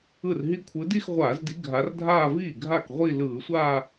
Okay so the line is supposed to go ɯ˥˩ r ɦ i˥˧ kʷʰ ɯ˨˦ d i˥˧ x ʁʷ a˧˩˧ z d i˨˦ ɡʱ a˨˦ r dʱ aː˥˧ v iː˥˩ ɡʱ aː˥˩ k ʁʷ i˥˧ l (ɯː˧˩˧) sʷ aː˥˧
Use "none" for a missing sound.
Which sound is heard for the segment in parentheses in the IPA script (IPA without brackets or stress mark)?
ɯː˧˩˧